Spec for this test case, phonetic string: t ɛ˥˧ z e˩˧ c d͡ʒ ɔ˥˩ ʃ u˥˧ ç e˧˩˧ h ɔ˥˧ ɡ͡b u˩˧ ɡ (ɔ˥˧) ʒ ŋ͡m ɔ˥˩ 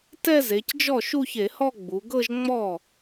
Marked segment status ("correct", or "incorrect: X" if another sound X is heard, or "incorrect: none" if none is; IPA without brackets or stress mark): incorrect: ɤ˥˧